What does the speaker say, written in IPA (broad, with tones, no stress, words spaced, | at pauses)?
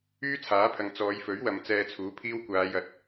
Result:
yː˥t͡sʰaː˨˥pʰɐ˨ŋ t͡sɔː˨˧jfɵ˨˥ɥwɐ˨m t͡sɛː˧t͡sʰuː˨˥pʰiː˥w kʷaː˨˧jɐ˨˥t̚